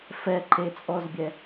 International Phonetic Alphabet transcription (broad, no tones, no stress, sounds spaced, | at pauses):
f ɛ ǃ e t͡sʼ ɔ z bʲ ɛ